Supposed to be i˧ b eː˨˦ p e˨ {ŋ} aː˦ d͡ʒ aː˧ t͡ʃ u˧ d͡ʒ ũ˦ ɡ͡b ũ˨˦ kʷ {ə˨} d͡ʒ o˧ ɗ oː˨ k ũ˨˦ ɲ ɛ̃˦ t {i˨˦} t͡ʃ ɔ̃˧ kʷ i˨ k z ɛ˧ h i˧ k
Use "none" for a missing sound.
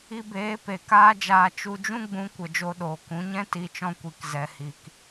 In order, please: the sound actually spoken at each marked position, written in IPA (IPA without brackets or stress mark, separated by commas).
k, ə˨, i˧